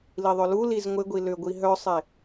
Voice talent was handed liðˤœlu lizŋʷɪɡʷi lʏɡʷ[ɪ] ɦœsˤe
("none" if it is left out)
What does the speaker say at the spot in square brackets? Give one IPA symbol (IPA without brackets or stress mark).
i